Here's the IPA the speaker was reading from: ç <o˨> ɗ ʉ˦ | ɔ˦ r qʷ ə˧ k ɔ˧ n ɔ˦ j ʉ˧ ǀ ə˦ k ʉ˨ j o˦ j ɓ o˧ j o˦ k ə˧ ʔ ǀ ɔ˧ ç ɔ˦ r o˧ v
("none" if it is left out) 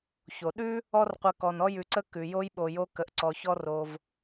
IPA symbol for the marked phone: o˨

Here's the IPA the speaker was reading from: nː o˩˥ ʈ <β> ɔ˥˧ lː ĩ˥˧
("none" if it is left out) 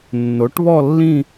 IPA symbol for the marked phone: β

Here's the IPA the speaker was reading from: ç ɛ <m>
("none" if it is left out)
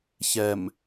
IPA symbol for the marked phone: m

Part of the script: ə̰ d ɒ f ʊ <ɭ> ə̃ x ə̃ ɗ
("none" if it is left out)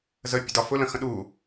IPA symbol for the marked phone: l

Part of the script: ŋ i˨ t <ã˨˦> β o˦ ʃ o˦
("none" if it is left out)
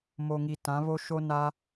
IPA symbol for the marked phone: ã˨˦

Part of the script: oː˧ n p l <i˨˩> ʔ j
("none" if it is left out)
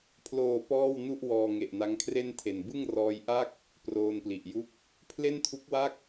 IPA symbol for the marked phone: i˨˩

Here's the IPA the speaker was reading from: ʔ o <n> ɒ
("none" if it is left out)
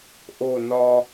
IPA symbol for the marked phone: n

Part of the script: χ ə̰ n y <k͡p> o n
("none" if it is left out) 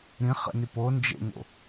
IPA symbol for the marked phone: p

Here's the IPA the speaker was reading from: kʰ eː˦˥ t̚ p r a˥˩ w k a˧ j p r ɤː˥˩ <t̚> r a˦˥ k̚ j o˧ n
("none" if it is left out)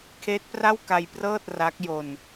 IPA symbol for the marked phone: t̚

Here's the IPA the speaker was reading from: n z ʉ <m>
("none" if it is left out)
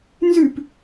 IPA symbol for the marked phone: p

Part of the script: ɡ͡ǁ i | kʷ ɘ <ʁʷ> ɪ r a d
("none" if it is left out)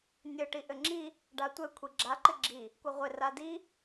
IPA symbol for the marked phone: ʁʷ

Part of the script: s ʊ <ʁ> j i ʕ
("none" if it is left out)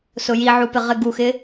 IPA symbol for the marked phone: none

